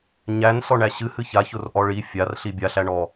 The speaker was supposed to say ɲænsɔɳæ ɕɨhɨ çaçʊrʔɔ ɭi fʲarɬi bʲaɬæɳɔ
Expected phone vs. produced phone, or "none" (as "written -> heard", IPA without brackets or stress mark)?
none